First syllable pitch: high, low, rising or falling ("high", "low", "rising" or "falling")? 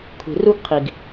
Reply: low